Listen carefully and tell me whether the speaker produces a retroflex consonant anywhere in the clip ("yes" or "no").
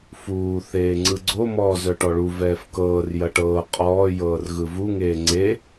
yes